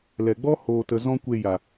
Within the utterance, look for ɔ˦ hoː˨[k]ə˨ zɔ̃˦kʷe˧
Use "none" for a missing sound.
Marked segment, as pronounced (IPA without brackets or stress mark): t